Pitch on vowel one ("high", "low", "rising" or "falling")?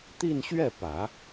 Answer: falling